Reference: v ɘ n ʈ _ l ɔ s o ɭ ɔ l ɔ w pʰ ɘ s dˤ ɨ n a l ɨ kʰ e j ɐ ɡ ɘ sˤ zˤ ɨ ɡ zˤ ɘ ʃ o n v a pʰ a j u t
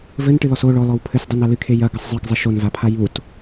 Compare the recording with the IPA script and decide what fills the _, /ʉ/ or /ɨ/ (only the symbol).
ɨ